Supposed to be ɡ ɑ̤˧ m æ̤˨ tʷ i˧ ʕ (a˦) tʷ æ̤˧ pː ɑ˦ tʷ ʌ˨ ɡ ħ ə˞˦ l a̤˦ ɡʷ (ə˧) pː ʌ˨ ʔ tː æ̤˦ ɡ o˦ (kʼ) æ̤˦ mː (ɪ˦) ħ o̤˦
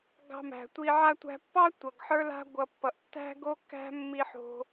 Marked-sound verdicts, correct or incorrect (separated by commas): correct, incorrect, incorrect, incorrect